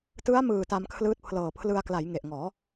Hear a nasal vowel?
no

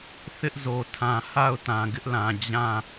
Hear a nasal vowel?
yes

